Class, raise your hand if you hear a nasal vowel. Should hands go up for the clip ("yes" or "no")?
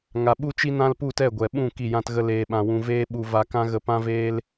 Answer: yes